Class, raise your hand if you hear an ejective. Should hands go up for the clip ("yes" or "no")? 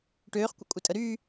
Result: yes